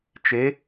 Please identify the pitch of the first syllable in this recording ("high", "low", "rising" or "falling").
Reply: rising